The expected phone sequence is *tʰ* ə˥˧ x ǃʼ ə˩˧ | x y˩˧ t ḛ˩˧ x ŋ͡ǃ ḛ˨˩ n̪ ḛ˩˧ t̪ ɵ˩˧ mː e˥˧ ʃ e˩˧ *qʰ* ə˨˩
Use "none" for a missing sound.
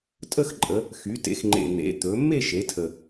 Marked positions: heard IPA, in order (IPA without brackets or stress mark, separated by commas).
tʼ, tʰ